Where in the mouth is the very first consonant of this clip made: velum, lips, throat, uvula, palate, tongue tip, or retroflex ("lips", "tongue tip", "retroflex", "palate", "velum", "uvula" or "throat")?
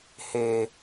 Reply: throat